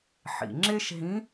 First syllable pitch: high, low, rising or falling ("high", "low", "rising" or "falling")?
low